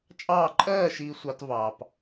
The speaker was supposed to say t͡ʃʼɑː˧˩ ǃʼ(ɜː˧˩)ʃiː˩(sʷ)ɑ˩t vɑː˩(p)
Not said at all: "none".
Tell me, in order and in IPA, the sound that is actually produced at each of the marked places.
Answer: ɜː˧˩, sʷ, p

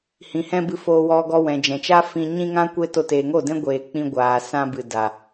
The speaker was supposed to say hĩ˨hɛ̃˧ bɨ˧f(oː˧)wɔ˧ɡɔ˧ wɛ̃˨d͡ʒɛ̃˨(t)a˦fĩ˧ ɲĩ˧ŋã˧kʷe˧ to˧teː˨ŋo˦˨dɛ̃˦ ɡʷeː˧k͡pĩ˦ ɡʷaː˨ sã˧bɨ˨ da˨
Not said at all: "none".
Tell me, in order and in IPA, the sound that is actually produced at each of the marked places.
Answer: oː˧, t͡ʃ

